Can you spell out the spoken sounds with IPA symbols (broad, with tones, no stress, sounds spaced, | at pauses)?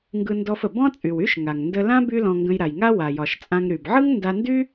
ŋ ɡ ɯ˧ n d ɔ˧ f ə˩ b ɔ̃˥ t͡sʼ y˩ w y˥ ʃ ŋ a˩ ŋ n d ə˧ l ã˥ b y˥ l ɔ̃˧ ŋ ɡ ə̃˧ j ɾ a˩ j ŋ a˥ w a˩ j ɒ˩ ʃ t͡sʼ ã˧ ŋ ɾ y˩ b ʕ ɯ˥ ŋ n d a˧ n d y˥